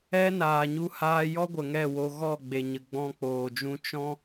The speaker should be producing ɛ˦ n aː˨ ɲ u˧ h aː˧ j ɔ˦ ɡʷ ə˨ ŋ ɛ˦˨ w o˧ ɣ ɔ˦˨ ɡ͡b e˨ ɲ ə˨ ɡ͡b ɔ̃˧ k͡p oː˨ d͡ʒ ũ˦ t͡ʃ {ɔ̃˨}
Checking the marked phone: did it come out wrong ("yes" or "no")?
yes